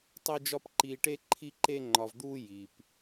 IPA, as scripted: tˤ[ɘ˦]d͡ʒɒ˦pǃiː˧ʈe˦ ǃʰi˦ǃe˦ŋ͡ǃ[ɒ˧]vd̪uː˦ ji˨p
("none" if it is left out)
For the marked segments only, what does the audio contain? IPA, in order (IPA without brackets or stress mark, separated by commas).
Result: e˦, ɒ˧